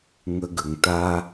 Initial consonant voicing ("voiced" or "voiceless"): voiced